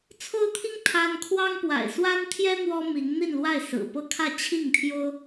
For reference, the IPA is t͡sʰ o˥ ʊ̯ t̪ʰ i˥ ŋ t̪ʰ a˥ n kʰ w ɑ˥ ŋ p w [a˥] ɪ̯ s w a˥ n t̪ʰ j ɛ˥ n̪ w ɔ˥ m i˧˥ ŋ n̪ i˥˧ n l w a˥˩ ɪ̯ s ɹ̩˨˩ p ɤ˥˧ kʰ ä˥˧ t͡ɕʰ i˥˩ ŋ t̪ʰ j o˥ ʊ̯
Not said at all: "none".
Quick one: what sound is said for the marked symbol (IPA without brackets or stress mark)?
a̰˨˩